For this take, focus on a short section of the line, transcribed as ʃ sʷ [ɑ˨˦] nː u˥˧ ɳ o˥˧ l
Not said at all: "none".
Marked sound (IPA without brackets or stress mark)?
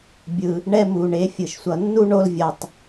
ʌ˨˦